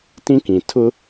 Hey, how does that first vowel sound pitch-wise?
high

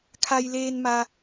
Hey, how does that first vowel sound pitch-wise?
low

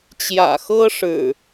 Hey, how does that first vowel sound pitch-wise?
low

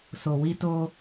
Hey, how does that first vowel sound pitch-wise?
low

